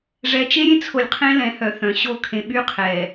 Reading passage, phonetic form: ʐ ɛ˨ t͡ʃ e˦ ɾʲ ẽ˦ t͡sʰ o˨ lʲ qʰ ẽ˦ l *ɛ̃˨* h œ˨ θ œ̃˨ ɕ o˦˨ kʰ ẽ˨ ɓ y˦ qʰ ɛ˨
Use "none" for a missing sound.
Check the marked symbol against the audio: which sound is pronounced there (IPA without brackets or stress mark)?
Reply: ɛ̃˨